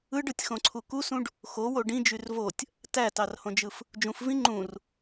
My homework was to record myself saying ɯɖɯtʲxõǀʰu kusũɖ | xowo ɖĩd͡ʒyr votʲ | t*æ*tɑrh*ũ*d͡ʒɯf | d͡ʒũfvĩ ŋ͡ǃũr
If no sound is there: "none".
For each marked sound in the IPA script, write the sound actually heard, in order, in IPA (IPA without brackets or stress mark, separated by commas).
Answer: æ, õ